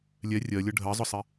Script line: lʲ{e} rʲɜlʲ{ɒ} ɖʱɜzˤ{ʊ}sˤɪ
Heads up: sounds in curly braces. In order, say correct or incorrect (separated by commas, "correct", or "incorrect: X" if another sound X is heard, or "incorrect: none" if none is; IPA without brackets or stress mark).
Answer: incorrect: ɛ, incorrect: ʌ, correct